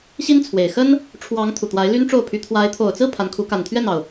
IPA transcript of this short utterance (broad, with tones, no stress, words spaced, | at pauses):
ɕi˥nt͡sʰwe˨˩ɪ̯ xə˥n | ʈ͡ʂʰwɑ˧˥ŋ t̪ʰu˨˩t̪wa˧˥ɪ̯ ly˥nʈ͡ʂo˥˩ʊ̯pʰy˧˥ t̪ʰwa˧˥ɪ̯ t̪ʰo˨˩ʊ̯t͡sɹ̩˥˩ pʰa˧˥nkʰu˧˥ ka˨˩nt̪ʰɥɛ˥˩nɑ˩ʊ̯